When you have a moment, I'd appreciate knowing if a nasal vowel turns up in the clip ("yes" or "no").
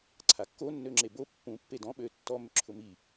yes